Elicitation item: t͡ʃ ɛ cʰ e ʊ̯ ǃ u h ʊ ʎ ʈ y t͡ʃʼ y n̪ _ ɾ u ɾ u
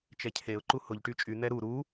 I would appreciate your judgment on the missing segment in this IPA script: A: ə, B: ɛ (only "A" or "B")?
B